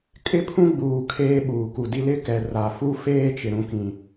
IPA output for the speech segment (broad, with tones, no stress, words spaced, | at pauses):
kʼɪ˦pʰũ˦ ɡ͡buː˨ kʰeː˦ɓuː˨ku˨di˦ lɪ˦kɛ˨ ra˨fu˦feː˦t͡ʃɪ˨ ɾũ˨kĩ˨